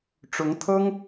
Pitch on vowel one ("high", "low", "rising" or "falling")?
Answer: rising